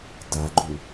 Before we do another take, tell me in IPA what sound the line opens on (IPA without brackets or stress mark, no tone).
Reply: d